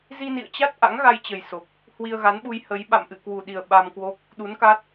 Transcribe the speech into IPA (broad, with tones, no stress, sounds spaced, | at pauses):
z i˧ n ḭ˧˨ ə̯ t͡ɕ a˦˥ t̚ ʔ a̰˧˥ ŋ ɣ a˧ j t͡ɕ ə˨˩ j s o˨˩ k̚ | h w i˧ ə̯ ɣ a˨˦ n ɓ u˧ j h ə˨˦ j ɓ a̰˧˨ m ʔ ɨ̰˧˨ k w u˨˩ ɗ i˨˩ ə̯ ɓ a˧ m k w o˦˥ k̚ | ɗ u˨˦ n k a˦˥ t̚